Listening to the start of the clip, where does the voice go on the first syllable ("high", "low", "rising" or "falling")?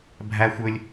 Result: high